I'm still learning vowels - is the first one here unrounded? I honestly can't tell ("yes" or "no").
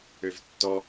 no